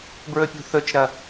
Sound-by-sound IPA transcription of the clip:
bɹɵpʲṳθɵt͡ʃɾɐ

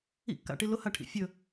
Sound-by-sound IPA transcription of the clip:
ḭkːa̰ʈi lʊhaʈʰḭ fʲɵ

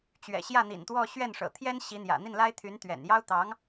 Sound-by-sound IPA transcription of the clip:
t͡ɕɥɛ̰˨˩ ɕjä˥˩n̪ḭ˨˩nt̪wɔ˥˧ ɕɥɛ˥˩nʂɤ̰˨˩ t̪ʰjɛ˥n ɕi˧˥n̪jä̰˨˩ n̪i˥˩nla˥ɪ̯t̪ʰy˧˥n t̪ɥɛ̰˨˩n jɑ˥ʊ̯ t̪ɑ˧˥ŋ

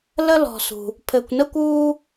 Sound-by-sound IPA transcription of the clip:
lə˥lɔ̤˧sṳ˧ | pʰɘ˧kʷnə˥kʷuː˥

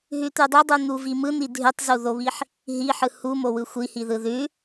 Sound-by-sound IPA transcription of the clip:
ɦʉt̪ʉdˤʉdˤu n̪uvimɯn̪i dʱʉtˤzuðoβiħ | ɦiħɯ humowɯ xʷihi ðɯðʉ

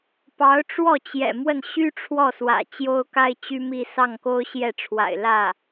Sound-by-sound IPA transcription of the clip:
pɑ˧˥ʊ̯ʈ͡ʂwɔ˥˩t͡ɕjɛ̰˨˩ mwə˥˩nɕy˥ʈ͡ʂʰwɔ˥˩swä̰˨˩ t͡ɕjo˥ʊ̯ka˥ɪ̯t͡ɕy˥mi˥˧ sɑ˥˩ŋko˥ʊ̯ɕjɛ˥˩ʈ͡ʂʰwa̰˨˩ɪ̯ lä˥˩

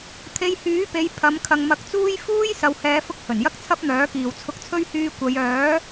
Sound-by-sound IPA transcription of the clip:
t̪ʰe˧jhyː˨˥pe˨˧j pʰɐ˨˧m kʰɐ˨ŋmɐ˨˥k̚t͡suː˥j fuː˥j sɐ˨whɛː˨˧fʊ˧k̚ hɵ˨˩njɐ˥k̚t͡sʰɐ˥p̚n̪œː˨˥ kiː˨wt͡sʰʊ˧k̚t͡sʰɵ˥ɥ hyː˧ kʷɐ˨˧jœː˨˥

